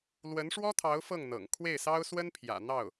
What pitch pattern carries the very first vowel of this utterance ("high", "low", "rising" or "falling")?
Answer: rising